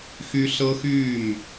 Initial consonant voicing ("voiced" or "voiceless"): voiceless